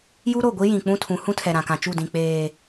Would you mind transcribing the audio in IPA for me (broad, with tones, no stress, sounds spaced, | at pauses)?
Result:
j u˦ ɾ o˦˨ ɡʷ i˦ j ĩ˨ k͡p ũ˦ tʰ ũ˨˦ h ũ˦ tʰ ɛ˨ ɾ ã˨ k ã˨ t͡ʃ u˦˨ d ĩ˨ k͡p eː˨